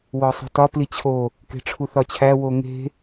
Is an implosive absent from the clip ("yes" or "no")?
yes